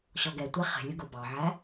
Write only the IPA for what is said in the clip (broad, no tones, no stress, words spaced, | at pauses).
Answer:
ɕɔɡɛtʷæ χɛ̤lʲʊ ɡʊ bɑʕæ